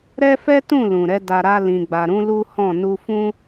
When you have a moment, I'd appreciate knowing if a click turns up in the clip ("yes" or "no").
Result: no